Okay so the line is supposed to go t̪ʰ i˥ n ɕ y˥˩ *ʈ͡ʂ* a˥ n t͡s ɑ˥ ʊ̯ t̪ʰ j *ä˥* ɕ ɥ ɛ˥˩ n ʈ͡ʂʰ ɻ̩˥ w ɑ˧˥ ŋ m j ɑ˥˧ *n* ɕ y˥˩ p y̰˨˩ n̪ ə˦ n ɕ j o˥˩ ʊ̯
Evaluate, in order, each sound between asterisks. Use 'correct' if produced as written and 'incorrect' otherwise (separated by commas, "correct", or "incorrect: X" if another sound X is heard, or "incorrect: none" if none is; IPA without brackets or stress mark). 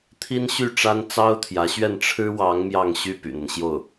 correct, incorrect: ä˧˥, incorrect: ŋ